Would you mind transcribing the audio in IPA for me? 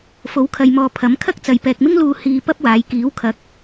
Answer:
f o˨˥ w kʰ ɐ˨ j m ɔː˨ pʰ ɐ˨˥ m kʰ ɐ˥ k̚ t͡s ɐ˨ j p ɛː˨ k̚ m ɪ˥ ŋ l uː˧ h iː˧ p ɐ˥ p̚ w aː˨˧ j k iː˨˥ w kʰ ɐ˨˥ k̚

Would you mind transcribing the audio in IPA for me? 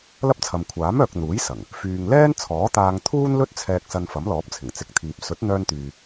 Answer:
l ɐ˥ p̚ t͡sʰ ɐ˨ m kʷʰ aː˨˥ m œː˨ k̚ n̪ uː˨˥ j s ɐ˨˩ ŋ | f yː˨ ŋ l ɛː˥ n t͡sʰ ɔː˨˥ t̪ aː˧ ŋ t̪ʰ uː˥ n l ɵ˥ t̚ t͡sʰ ɛː˧ k̚ s ɐ˧ n f ɐ˨˥ m l ɔː˨˥ p̚ t͡sʰ ɪ˨˩ ŋ t͡s ɪ˨˥ k̚ t̪ʰ iː˨ p̚ s ɵ˨˥ t̚ n̪ œː˧ n t̪ yː˨

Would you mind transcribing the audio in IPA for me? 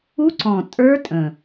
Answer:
u˦˥ ǀ ɔ̃˨˩ tʼ ə˞˦˥ tʼ ə̃˨˩

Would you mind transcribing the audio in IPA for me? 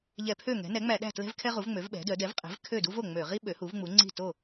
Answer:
ʎ ɛ˧˩˧ pʰ ø˥˩ ŋ ɛ̤˩˥ n ɛ˩˥ ŋ͡m æ˧˩˧ ɗ æ̤˥˩ t l ɛ̤˥ v kʰ ɛ˥ ʁ u˩˥ v ŋ͡m ø˩˥ v ɓ ɛ̤˩˥ d œ˩˥ d ɛ˩˥ v qʼ ɛ̤˩˥ v kʰ ø˥˩ d u˥ v o˥˩ ŋ͡m ø˧˩˧ ʁ i˥ ɓ ø˩˥ h u˩˥ v ŋ͡m u˩˥ ŋ͡ǀ i̤˥˩ t o˥˩

